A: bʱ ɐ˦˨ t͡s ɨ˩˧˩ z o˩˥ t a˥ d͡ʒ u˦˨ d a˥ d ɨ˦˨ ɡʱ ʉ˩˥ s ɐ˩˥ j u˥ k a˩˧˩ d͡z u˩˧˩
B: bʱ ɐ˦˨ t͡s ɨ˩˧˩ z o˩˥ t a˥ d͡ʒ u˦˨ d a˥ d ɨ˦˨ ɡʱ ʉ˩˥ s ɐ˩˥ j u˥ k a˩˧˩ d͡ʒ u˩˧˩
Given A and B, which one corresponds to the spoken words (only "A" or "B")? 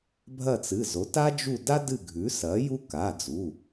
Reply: A